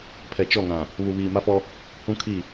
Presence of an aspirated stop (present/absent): present